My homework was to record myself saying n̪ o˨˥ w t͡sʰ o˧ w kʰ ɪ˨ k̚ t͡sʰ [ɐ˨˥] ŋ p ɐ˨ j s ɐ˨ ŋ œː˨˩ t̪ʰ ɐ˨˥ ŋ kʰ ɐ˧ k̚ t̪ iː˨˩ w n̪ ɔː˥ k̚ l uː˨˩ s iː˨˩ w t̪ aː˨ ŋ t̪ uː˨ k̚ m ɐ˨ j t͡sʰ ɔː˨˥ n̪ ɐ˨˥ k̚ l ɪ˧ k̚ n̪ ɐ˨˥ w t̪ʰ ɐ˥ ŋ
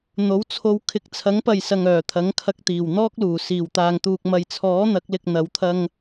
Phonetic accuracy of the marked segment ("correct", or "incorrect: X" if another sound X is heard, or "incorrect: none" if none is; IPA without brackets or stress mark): correct